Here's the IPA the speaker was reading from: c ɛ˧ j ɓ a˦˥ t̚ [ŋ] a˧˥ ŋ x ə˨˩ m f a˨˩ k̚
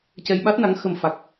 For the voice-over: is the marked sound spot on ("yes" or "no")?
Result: no